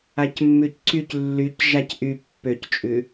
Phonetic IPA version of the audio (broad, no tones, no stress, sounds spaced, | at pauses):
a c mː ʉ c ǀ y c lː y c ʒ a c ʔ y pː ø c t͡ʃʼ ʉ